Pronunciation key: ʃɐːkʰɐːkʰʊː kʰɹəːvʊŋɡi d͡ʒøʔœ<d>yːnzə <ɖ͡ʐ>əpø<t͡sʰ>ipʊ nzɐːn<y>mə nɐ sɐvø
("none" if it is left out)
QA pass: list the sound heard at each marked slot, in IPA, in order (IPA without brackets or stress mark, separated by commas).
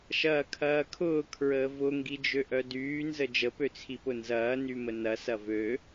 d, d͡ʒ, t͡sʰ, y